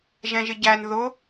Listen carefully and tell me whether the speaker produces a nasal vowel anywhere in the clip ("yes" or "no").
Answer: yes